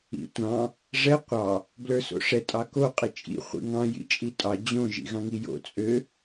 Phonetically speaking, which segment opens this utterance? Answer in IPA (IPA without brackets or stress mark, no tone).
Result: ḭ